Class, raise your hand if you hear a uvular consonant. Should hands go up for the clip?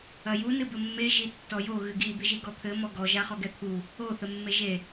yes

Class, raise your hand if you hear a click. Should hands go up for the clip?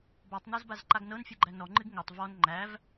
yes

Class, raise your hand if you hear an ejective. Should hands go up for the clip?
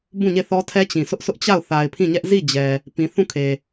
no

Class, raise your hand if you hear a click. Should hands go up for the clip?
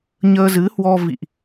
no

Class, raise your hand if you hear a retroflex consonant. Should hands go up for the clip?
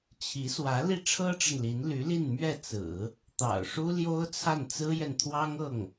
yes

